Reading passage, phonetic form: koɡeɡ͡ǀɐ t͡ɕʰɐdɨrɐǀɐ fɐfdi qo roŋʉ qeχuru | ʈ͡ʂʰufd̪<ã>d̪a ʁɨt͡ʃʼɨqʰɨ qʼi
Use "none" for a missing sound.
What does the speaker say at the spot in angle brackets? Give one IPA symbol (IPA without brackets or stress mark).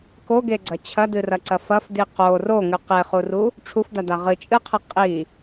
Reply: a